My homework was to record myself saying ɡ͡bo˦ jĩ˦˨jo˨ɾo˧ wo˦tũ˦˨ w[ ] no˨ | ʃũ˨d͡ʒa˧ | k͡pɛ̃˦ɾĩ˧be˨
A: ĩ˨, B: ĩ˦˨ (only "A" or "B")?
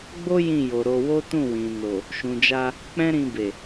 A